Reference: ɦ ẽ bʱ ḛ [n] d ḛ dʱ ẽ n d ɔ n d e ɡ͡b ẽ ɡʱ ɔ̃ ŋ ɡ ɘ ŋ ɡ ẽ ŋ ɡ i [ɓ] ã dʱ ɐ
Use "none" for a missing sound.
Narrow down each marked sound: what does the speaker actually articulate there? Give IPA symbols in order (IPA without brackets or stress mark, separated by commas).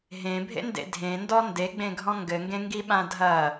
n, ɓ